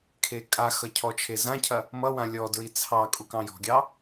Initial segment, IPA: kʰ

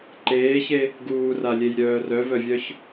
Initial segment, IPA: ǃ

